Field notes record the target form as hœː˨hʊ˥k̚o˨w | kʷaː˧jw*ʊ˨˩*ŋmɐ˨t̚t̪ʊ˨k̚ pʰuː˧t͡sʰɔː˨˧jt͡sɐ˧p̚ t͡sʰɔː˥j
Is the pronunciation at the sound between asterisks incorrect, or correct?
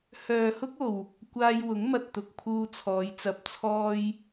incorrect